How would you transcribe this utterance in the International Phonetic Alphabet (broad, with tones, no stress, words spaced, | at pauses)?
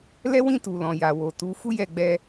lɛ˦wĩ˦˨tu˨ lɔ̃˨ja˨ wo˨tu˨˦ fu˦jɛ˦˨ɡ͡bɛ˧